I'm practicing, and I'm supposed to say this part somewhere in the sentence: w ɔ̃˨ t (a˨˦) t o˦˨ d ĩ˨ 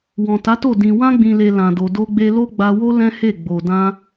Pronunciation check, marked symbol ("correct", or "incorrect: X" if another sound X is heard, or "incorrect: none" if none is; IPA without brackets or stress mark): correct